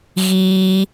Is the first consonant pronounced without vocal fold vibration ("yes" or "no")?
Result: no